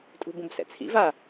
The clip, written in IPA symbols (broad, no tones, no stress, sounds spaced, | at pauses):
tʼ ṳ b ũ b s ɛ̰ t͡sʰ ḭ v a